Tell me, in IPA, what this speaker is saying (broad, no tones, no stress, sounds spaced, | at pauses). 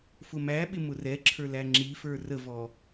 f ʊ m æ ɓ ɪ m ʊ r ɛ ǁʰ ə˞ l æ ŋ͡ǁ i f ə˞ r ə v ɔ